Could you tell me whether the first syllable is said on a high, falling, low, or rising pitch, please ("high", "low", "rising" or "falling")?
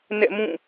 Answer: falling